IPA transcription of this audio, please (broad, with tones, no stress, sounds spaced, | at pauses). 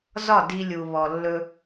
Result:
z ɒ˦˨ d i˧ lʲ u˨ β ɔ˨ lː ɵ˧